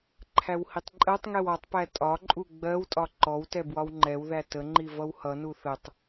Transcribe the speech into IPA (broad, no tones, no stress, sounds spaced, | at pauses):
ǃʰ æ w h i tˤ ǃʼ ɜ tˤ ŋ ɛ w ɒ tˤ p æ tʼ ɒ ǃʼ u ɡ͡b ɜ w tʼ ɒ ǃ ɔ w t ɛ b w ɒ w ŋ͡ǃ ɛ w ð æ t ə ŋ͡ǃ i v ʌ w h ʌ n u θ ə tˤ